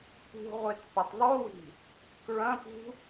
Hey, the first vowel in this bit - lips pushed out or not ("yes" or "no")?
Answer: yes